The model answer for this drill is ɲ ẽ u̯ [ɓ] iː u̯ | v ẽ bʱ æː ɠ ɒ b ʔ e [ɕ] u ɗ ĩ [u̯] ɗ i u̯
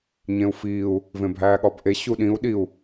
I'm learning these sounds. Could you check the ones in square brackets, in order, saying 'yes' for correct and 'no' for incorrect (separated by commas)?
no, yes, yes